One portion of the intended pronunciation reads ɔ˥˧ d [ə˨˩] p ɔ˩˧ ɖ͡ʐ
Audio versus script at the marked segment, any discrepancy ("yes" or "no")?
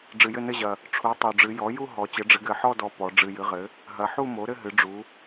yes